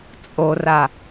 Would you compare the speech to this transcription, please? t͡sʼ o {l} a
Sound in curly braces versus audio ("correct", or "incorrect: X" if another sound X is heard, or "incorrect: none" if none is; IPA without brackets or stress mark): incorrect: r